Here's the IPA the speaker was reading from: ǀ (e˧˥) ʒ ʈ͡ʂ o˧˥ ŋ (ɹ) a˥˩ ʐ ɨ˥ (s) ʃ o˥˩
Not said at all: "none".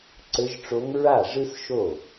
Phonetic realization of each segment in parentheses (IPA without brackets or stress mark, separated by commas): ɘ˧˥, ɹ, s